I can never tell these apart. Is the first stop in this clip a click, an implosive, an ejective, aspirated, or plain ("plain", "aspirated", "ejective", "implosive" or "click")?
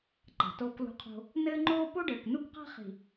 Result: click